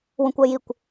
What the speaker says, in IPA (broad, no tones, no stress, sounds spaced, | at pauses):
w ũ kʷ ɜ j i kʷ